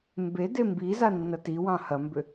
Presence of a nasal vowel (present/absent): present